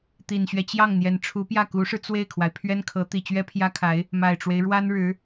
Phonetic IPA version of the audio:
t̪ i˨˩ n ɕ ɥ ɛ˦ t͡ɕ j ɑ˥˩ ŋ n̪ j ɛ˧˥ n ʈ͡ʂʰ u˧˥ p j ä˥˩ k u˧˥ ʂ ɻ̩˧ t͡s w e˥˩ ɪ̯ kʰ w a˩ ɪ̯ pʰ ɥ ɛ˥ n kʰ ɤ˧˥ t̪ i˨˩ t͡ɕ ɥ ɛ˥ pʰ j ä˥ kʰ a˧˥ ɪ̯ | m a˨˩ ɪ̯ ʈ͡ʂ w e˦ ɪ̯ ɻ w a˥ n ɻ ɻ̩˧˥

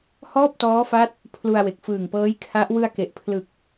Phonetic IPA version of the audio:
h ɔː˥˩ p̚ t ɔː˦˥ f a˦˥ t̚ | pʰ l u˧ a̯ w e˨˩ k̚ f ɯː˨˩ ŋ p ɤː˦˥ j kʰ a˦˥ ʔ w ɯ˧ a̯ k e˨˩ ʔ pʰ l ɯ˨˩ k̚

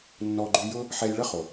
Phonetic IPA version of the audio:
nː ɔ˧ ɡ͡ǃ y˧ j ʊ˥ | ħ ɛ˧ j ɭ ə˥ χ o˩

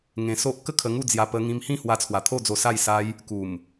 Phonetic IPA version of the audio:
ŋ ẽ˧ s o˦ ʔ k ə˥˧ kʰ ə˧ ŋ u˥˧ d͡z j a˧ p ə˧ ŋ ĩ˧ m h ĩ˥˧ h w a˧ t͡sʰ w a˨˩ t̪ʰ o˥˧ d͡z o˧ s a˥˧ j s a˦ j | k u˨˩ m

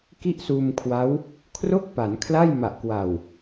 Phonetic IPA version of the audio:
k i˥˩ ʔ s uː˧ m kʰ w a˦˥ w | kʰ r o˥˩ k̚ p a˩˦ n kʰ l a˥˩ j m a˨˩ ʔ k w a˨˩ w

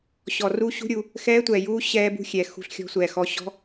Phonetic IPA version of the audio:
ɕ ɔ˨ r u˦˥ ɕ ṳ˦˥ ɾʲ u˨ | x ɛː˦˥ tʷ ɛː˨ j uː˦˥ ɕ ɛː˦˥ b ṳ˦˥ xʲ ɛ˨ x ṳ˦˥ ɬ xʲ ɔ̤˦˥ sʷ ɛː˨ x ɔ˦˥ ɕ ɔ̤˦˥

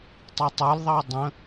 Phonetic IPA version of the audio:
tˤ i tˤ ə˞ l ðˤ ɑ dˤ ə̃

